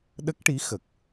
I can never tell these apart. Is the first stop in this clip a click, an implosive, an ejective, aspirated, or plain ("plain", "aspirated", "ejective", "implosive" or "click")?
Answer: implosive